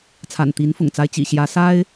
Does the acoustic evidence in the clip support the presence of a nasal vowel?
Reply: no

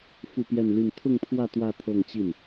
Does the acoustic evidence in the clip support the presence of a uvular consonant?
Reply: no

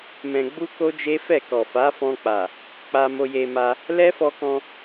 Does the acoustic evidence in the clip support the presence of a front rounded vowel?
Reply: no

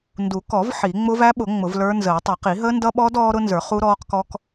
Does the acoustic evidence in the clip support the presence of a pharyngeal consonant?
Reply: yes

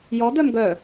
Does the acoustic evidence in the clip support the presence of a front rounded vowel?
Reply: yes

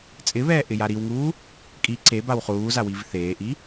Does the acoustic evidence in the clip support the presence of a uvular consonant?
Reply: yes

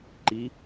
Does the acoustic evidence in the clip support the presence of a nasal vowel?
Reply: no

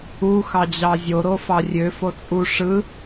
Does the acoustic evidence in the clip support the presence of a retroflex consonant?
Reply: yes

